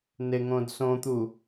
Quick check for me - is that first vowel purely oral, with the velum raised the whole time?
yes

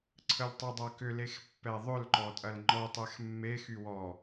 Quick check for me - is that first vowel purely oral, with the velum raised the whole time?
yes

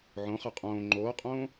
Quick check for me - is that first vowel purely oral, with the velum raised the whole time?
no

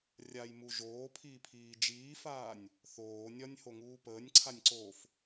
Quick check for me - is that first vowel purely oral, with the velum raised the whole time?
yes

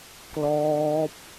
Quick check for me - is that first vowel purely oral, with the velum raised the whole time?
yes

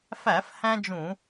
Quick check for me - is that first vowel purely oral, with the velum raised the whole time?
yes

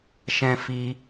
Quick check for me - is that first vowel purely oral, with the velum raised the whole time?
no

